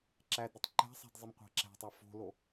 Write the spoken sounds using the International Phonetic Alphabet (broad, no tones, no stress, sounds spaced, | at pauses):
ǁ æ d ɾ ɪ tˤ ǃ æ̤ sˤ a̤ d zˤ ɪ m qʷ a̤ ǁ æ̤ tˤ a f o̤ l o